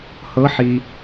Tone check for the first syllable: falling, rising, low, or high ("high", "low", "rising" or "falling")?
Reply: rising